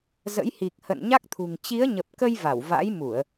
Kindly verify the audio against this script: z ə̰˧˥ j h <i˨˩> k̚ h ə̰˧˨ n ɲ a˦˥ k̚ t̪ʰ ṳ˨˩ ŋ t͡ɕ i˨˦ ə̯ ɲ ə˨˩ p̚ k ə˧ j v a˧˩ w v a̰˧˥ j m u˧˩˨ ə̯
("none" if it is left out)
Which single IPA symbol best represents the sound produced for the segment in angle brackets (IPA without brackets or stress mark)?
i˨˩